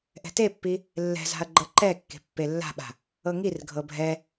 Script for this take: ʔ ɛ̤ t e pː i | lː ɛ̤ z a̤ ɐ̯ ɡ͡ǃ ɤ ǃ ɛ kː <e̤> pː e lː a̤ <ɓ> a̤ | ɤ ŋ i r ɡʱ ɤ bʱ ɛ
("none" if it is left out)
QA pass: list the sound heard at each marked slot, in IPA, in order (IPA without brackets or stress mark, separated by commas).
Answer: e̤, ɓ